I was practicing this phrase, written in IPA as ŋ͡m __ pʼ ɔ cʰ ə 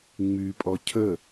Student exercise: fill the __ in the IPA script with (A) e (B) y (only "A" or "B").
B